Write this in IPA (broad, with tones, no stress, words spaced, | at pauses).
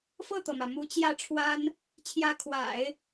fɤ˥˩t̪ɤ˩mä˩ mu˧˥t͡ɕjä˥˩ʈ͡ʂʰwa˥n | t͡ɕʰjä˧˥kʰwa̰˨˩˦ɪ̯